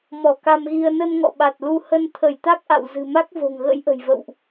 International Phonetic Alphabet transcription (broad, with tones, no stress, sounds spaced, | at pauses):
m ɔ˧˩ k a˧ m ɣ i˧ ə̯ n ə˧ n ŋ ɔ̰˧˨ ɓ a˨˩ t̚ l u˧ h ə˧ n t̪ʰ ə˧˩ j t̪ a˦˥ k̚ ʔ a̰˧˨ w z ɨ̤˨˩ m a˦˥ k̚ v o̤˨˩ ŋ ɣ ə̰˧˥ j ʔ ə̤˨˩ j v ə̰˧˨ w ʔ